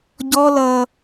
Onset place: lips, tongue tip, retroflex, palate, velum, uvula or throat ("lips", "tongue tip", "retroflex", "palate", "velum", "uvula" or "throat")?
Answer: palate